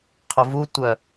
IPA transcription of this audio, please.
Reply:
qʰ ʊ v u tʷ œ

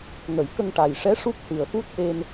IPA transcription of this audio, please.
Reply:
ŋ ə˨˩˨ j k ə˧ ŋ ʈ a˨˩ j ʂ ɛ˧˥ ʂ u˦˥ k̚ h ɨ˨˩ ə̯ f u˦˥ t̚ ʔ e˧ n

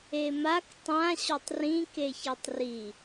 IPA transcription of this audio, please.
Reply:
e m a k tˤ ã ɕ o tˤ r ĩ k e ç ɛ tˤ r i

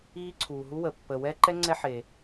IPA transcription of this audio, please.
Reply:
iː˥ ǀʰ uː˧ ɦ u˥ w ə˧ pː əː˧ w ɛː˥ ǃ ɛ˥ ŋ͡ǀ ɛ˥ ħ e˧

